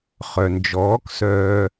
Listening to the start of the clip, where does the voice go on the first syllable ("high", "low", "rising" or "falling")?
low